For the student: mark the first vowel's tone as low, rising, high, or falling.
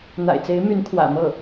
low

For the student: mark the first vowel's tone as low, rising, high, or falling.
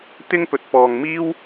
high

